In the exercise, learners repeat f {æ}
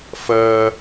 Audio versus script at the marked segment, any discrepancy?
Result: yes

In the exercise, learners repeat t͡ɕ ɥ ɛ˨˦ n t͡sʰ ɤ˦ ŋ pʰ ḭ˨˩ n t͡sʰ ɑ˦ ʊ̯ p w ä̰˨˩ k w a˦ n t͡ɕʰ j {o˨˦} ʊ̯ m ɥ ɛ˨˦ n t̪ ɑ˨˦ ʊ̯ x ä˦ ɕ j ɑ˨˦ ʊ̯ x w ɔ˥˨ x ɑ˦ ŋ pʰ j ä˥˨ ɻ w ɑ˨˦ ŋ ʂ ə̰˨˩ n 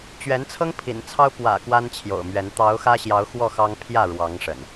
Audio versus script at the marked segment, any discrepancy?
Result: yes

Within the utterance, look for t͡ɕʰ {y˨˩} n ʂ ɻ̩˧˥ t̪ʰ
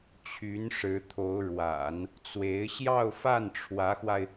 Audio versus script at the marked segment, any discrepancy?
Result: yes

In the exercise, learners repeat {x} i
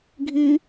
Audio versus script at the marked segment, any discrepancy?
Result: yes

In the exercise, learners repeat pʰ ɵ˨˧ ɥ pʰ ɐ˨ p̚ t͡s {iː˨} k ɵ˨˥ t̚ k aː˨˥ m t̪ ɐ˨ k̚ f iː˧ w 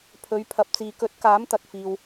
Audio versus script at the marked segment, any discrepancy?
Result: no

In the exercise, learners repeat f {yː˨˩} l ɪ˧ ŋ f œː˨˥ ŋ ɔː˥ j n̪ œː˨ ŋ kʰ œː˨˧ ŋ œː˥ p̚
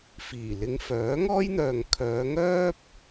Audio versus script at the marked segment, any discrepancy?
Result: yes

